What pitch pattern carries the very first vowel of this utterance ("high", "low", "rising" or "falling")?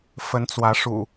rising